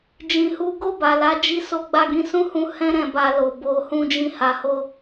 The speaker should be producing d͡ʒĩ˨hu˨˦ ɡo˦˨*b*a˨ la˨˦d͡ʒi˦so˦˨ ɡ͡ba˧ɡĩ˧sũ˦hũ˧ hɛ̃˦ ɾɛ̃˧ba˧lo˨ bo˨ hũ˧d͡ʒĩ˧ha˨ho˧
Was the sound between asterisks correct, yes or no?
yes